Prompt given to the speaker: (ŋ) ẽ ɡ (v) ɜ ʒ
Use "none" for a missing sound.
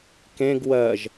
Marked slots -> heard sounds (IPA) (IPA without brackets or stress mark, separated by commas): k, w